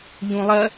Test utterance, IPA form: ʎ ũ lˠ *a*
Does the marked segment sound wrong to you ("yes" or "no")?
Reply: yes